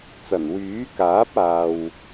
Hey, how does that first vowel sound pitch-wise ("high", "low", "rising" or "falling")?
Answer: low